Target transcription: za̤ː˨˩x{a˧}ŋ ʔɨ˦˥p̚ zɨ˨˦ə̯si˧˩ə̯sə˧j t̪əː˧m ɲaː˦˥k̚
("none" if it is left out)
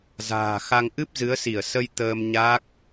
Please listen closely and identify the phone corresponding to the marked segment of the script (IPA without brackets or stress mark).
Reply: a˧